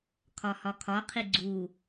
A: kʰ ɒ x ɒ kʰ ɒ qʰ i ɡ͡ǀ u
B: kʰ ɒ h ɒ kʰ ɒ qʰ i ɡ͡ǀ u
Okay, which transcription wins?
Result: B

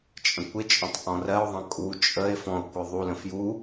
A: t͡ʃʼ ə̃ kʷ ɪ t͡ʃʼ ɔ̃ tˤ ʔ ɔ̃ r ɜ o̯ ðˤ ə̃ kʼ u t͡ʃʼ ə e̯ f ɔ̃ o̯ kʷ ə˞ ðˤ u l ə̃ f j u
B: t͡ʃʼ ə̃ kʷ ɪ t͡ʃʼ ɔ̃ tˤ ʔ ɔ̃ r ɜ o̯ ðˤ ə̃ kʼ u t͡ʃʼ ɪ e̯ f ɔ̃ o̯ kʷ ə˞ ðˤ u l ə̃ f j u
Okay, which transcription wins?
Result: A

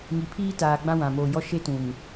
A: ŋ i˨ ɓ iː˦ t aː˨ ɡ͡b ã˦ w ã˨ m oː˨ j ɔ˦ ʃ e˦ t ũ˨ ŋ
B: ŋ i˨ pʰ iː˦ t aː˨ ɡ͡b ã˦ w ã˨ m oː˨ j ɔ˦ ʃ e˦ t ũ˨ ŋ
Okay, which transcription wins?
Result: B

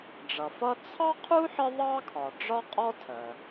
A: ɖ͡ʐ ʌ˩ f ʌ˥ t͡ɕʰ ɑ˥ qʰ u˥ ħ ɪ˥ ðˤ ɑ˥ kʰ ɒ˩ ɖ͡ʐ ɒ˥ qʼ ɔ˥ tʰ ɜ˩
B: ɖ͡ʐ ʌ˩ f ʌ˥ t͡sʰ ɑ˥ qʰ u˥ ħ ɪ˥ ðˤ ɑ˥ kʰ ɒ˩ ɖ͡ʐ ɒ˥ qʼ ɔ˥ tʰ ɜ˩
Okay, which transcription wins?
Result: B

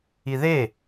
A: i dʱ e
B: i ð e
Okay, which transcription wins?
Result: B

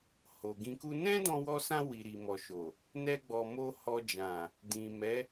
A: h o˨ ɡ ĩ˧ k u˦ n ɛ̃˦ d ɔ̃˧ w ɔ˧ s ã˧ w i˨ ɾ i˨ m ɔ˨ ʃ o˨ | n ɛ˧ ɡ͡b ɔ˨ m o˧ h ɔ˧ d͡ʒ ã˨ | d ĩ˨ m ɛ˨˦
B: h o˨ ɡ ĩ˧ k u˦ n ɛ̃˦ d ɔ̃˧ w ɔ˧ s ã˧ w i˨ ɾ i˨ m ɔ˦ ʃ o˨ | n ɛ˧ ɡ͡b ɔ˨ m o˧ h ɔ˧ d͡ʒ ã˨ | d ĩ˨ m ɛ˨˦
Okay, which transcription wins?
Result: A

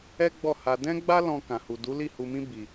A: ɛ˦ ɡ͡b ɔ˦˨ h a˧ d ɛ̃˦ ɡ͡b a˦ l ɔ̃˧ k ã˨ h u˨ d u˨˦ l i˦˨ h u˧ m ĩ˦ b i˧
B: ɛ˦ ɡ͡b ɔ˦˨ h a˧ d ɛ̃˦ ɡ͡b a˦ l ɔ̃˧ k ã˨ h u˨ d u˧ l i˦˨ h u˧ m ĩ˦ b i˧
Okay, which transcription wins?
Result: A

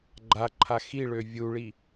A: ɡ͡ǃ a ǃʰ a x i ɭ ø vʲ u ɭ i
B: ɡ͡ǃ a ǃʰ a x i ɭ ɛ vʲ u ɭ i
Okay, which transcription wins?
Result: A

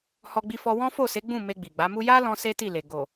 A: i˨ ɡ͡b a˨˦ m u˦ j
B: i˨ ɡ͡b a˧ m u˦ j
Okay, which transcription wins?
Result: A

